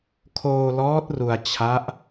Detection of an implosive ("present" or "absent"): absent